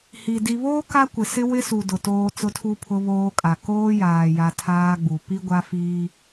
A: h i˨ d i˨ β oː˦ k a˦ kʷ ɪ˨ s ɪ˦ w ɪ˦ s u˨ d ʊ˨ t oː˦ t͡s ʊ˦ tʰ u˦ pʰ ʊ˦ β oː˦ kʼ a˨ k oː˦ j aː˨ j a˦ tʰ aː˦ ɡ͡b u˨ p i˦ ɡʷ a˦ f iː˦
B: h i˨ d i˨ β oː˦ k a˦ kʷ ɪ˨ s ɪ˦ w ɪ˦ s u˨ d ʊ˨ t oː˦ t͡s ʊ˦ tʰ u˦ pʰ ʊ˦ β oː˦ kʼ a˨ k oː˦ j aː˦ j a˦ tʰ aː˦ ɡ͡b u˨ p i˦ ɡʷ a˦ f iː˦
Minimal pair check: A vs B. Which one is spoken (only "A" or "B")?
A